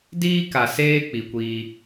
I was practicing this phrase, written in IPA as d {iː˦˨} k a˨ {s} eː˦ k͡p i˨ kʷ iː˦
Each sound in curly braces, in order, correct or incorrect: incorrect: iː˦, correct

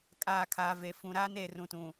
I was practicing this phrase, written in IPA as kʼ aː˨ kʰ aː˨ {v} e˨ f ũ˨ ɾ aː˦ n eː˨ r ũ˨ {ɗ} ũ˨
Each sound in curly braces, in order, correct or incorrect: correct, incorrect: t

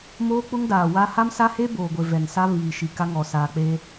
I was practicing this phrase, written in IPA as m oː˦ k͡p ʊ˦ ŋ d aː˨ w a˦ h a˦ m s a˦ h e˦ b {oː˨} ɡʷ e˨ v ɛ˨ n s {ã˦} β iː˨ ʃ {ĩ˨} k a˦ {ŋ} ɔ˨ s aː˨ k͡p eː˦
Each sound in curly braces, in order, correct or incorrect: correct, incorrect: a˦, incorrect: i˨, correct

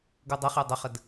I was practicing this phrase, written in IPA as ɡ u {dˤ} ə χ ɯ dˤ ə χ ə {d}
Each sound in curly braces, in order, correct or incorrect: correct, correct

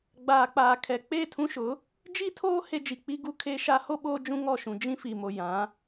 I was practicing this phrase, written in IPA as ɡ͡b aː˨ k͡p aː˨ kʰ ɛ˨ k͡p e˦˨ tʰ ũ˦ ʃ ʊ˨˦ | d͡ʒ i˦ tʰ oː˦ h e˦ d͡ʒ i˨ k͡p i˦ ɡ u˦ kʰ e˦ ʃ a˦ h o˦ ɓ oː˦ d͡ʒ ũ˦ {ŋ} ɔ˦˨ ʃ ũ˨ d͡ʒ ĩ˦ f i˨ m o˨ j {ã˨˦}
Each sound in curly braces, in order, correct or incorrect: correct, correct

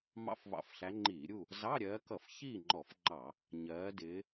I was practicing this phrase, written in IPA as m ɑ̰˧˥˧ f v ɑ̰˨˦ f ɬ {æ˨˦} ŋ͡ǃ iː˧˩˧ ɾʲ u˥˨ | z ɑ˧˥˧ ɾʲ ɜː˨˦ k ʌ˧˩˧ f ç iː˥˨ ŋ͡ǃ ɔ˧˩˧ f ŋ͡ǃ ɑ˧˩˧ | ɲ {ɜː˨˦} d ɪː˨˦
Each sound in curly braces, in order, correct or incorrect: correct, correct

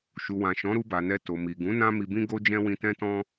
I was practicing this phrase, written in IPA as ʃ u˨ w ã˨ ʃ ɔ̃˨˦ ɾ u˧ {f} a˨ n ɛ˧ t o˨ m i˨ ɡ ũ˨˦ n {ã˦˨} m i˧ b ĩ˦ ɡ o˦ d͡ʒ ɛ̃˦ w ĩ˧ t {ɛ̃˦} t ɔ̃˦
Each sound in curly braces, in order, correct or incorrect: incorrect: b, incorrect: ã˦, correct

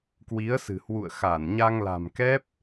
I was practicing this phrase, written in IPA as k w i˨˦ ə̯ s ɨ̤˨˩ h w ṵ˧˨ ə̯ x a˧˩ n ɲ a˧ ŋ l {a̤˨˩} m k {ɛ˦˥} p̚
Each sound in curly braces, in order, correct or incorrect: correct, correct

